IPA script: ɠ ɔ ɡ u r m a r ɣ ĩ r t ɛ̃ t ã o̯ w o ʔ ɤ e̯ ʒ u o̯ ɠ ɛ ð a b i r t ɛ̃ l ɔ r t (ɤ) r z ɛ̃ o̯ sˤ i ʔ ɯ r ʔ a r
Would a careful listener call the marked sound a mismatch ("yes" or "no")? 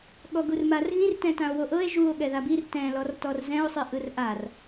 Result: yes